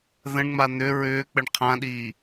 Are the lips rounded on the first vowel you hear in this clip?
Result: no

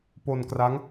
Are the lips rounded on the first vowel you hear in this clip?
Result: yes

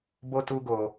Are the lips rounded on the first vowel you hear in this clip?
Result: yes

